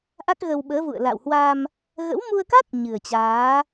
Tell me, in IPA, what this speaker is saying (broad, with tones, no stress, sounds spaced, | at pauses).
ʔ a˦˥ k̚ ɣ ə˧ w ɓ əː˨˦ v ṵ˧˨ ə̯ l a̰˧˨ w h w a˧ m | ɣ ə̰˧˥ w m u˧ ə̯ k a˦˥ t̚ ɲ ɨ˨˩ ə̯ t͡ɕ aː˨˦